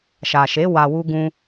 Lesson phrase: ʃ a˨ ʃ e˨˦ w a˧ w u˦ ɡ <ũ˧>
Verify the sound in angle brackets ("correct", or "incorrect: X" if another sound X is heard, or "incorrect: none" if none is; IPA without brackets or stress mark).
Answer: incorrect: ũ˦